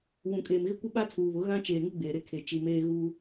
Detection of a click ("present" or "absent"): absent